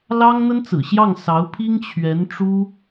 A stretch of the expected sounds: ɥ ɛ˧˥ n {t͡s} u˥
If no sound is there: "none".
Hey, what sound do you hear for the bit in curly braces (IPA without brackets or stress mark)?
ʈ͡ʂ